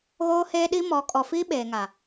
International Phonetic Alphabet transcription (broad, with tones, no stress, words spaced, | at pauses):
ɣoː˦heː˦ ɗi˦ mɔ˨˦ kʼɔ˨fiː˦ ɓeː˨ŋa˨